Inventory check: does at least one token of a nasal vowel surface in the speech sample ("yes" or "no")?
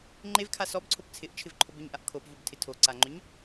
no